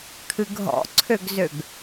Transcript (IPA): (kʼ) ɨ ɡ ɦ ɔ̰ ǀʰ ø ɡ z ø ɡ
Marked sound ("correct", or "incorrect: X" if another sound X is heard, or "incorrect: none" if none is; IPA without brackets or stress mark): incorrect: kʰ